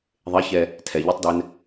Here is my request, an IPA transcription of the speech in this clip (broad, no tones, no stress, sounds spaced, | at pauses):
ðˤ e ç ɛ | tʰ ɛ ʎ ɛ tˤ d ɛ n